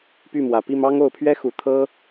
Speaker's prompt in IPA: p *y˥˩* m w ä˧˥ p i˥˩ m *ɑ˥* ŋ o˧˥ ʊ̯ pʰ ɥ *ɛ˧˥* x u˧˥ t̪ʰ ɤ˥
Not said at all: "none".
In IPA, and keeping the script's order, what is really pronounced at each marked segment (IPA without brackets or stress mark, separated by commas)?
y˥˩, ɑ˥, ɛ˥